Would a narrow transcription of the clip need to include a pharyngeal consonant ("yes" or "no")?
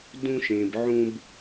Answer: yes